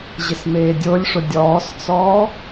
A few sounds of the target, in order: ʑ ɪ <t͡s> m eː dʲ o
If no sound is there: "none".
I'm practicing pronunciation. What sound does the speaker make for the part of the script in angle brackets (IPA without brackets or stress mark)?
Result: s